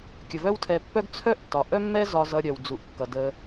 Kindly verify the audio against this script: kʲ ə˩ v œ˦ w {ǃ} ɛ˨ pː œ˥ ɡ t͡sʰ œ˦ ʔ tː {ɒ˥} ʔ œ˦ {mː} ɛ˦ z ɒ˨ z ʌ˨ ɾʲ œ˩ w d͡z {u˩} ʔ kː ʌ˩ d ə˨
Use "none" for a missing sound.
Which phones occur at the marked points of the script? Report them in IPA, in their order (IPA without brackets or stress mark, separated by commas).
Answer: tʰ, ɒ˩, mː, u˩